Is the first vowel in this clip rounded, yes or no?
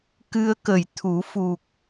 no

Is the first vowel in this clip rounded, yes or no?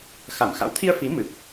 no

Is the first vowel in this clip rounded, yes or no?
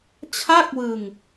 no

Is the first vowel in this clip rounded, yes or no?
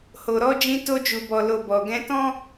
yes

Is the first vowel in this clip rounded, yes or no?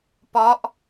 yes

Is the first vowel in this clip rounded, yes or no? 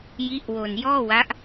no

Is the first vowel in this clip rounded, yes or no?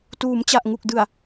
yes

